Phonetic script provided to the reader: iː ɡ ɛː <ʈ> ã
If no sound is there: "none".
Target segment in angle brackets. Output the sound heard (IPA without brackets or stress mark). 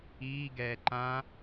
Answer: ǃ